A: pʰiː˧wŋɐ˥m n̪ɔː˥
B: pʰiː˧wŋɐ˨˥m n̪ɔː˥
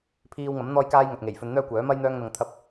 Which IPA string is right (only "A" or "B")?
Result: B